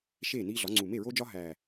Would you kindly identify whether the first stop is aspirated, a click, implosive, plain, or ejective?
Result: click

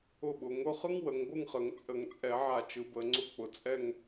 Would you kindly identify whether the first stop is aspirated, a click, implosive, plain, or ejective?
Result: implosive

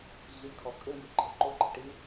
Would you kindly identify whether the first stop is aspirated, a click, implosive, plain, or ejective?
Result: aspirated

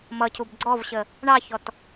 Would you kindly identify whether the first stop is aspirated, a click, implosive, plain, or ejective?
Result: aspirated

